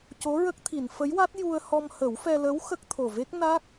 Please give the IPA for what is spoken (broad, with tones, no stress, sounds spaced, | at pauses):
c o˧˥ ɹ ə˦˥ k̚ t̪ʰ i˨˩˨ n f ə˧˥ j w a˦˥ t̚ j u˧ ə̯ h ɔ˧ m h ə˨˩˦ w f ɛ˧ l ə˧˥ w x ə˦˥ k̚ t̪ʰ o˨˩ v e˦˥ k̚ n a˦˥ k̚